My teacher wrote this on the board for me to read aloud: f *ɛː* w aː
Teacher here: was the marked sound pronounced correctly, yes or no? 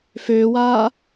no